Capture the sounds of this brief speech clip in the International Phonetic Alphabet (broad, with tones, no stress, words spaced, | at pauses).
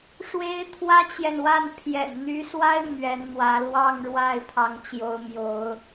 ʂwe˥ɪ̯ t̪ʰwä˥t͡ɕjɛ˨nwa˥˩n pʰjɛ̰˨˩nn̪y˧˥swa˥ɪ̯ mɥɛ˧˥nn̪wä˧˥ lwɑ˥˧ŋɻwa˥˩ɪ̯ pʰɑ˧˥ŋt͡ɕjo˧˥ʊ̯ mjo˧˥ʊ̯